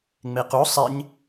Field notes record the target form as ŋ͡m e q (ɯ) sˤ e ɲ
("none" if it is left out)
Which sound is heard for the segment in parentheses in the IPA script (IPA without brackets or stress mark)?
u